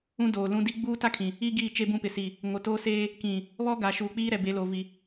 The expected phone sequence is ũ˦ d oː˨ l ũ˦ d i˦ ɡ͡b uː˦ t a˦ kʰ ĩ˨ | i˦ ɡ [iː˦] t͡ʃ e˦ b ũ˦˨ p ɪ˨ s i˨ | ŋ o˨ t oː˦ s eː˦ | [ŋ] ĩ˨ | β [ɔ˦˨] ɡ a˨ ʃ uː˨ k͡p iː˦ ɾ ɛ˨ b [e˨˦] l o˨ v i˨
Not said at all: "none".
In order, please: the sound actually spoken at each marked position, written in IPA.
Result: iː˦˨, k, ɔ˦, e˨˦

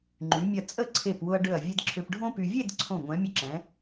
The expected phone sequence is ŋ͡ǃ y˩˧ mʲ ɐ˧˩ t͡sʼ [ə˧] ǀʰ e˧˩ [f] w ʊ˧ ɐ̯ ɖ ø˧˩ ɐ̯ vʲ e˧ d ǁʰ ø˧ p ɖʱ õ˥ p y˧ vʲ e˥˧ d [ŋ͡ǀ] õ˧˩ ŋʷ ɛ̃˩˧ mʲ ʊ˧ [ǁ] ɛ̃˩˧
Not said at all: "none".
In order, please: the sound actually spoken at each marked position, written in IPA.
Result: ə˥˧, p, ǀʰ, ǁ

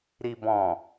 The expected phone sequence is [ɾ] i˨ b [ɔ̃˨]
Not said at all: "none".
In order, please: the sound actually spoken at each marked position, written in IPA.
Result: ɾ, ɔ̃˨

